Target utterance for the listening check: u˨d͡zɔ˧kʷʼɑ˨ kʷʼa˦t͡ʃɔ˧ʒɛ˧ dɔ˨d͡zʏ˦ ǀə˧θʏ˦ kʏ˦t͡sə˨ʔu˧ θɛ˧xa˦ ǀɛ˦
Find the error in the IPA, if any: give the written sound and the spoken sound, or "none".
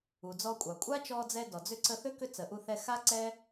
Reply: ʒ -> d͡z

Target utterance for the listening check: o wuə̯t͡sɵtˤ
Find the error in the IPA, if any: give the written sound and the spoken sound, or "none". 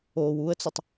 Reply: none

